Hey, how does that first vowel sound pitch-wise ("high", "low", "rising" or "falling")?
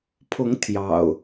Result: rising